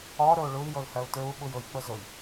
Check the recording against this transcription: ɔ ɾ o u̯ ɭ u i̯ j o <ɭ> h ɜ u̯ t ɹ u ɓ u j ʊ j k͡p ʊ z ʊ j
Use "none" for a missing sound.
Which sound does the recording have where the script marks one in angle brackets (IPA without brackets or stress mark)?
l